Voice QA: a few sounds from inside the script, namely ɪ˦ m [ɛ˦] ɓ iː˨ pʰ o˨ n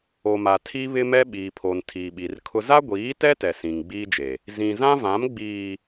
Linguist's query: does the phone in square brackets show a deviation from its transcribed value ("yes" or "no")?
no